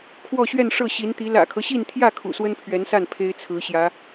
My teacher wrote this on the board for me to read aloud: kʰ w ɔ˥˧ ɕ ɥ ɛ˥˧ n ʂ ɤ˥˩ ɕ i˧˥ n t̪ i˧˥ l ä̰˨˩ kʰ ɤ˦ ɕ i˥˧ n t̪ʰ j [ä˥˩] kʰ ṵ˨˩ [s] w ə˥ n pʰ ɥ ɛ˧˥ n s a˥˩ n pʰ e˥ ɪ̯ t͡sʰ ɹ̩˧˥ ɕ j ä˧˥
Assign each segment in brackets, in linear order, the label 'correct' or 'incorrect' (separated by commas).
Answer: correct, correct